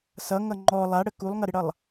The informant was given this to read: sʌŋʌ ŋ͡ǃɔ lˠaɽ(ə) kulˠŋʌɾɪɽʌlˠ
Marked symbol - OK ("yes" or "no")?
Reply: yes